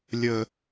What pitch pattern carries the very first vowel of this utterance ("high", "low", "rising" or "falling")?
low